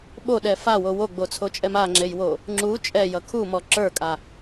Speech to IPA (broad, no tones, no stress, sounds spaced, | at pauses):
ɓ o ɗ ɛ f a w o w o ɡ͡b o t͡sʰ o t͡ʃʼ ɛ m a ŋ͡ǁ e j w o | ŋ͡ǁ u t͡ʃʼ ɛ j ʌ kʰ u m ɔ ǁ ə˞ kʼ a